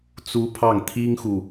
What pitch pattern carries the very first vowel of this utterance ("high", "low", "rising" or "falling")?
high